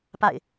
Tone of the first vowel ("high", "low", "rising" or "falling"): falling